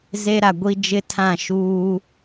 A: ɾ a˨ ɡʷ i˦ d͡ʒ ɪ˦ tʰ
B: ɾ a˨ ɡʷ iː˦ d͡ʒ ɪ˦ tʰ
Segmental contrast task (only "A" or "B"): A